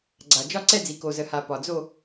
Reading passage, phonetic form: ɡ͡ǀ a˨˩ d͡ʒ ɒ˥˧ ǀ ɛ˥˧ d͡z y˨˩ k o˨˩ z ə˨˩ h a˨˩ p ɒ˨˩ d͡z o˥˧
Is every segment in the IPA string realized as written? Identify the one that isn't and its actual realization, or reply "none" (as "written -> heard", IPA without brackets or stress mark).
y˨˩ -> i˨˩